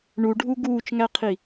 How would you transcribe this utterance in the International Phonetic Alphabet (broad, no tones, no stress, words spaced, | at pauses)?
ɳuɖʱu ɡuːt͡ʃŋæqʰi